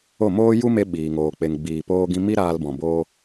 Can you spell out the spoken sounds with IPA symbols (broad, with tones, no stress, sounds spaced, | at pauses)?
o˦˨ m oː˦ j u˦ m e˧ ɓ iː˧ ŋ oː˧ k͡p e˧ ŋ ɡ͡b iː˨ p oː˧ ɡ ĩ˧ m i˦ ɾ aː˧ l b ɔ̃˨ b oː˧